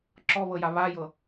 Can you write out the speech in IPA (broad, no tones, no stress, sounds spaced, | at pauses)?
ǁ ɔ β ɤ j a β a j ɤ